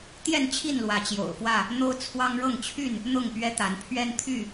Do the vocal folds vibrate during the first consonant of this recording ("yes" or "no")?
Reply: no